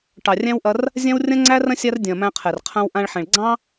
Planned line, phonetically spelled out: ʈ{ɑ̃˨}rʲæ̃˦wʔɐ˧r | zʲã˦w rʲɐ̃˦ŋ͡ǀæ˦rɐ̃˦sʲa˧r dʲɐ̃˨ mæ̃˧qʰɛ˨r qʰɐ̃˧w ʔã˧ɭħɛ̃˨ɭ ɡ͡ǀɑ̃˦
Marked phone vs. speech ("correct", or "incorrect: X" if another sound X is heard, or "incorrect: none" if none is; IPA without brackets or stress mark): incorrect: ɑ˨